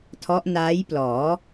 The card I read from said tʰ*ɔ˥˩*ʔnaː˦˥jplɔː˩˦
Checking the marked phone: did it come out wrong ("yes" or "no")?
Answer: yes